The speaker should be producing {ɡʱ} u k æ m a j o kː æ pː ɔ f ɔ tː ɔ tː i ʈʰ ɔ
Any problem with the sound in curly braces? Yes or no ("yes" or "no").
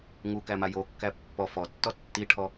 yes